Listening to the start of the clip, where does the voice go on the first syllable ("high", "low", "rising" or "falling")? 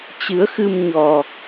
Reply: rising